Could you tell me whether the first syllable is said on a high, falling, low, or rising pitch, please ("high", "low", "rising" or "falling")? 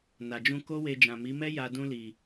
low